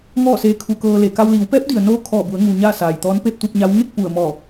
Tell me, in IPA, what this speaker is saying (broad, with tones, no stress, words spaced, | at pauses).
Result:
ŋɔː˥˨seː˧˥kʰu˧kɤː˧ le˩ka˧w liː˩˧wpɛː˧˥p̚di˩ə̯noː˧ kʰɔː˧˩bu˩˧ə̯ŋu˩ ɲaː˥˨saː˩jt̪ɔː˧˥n pe˥˨p̚t̪u˥˨p̚ɲa˧˥w ŋe˥˨k̚ pu˧˩ə̯ mɔː˧˩